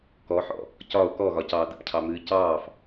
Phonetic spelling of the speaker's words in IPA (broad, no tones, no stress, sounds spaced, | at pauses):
k ɔ ħ ɔ̰ | c ɒ o̯ k ɔ ɣ ɒ c ɑː d ə̰ p cʰ ɑ m ɨː c ɑː f